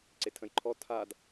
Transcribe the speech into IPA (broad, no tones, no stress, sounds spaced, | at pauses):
ǀ e tʰ ə̃ j ǃʰ ɔ tʰ a d